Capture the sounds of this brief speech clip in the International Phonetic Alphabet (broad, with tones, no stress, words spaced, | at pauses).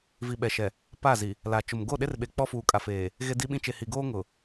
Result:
vi˨ɓɛ˨ʃɛ˨ | pa˦˨zi˨ | la˨t͡ʃʊ˨m ɡo˦˨ɗe˦rɓe˨ k͡pɔ˦fuː˨kʼa˨feː˨ | ɣe˦di˦ɓĩ˦ t͡ʃe˨hi˨ɡoː˦ ŋʊ˨